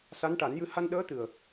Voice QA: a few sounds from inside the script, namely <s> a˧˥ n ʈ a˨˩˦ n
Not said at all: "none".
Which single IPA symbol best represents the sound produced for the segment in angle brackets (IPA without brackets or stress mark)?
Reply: s